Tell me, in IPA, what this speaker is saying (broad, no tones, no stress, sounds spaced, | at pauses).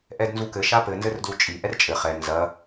ʔ ɛ d n z u k ɘ ʃ a p ɘ n z ɘ r d l u t͡ʃʼ i ʔ ɛ r t͡ʃʼ ɘ χ ɛ n z ɐ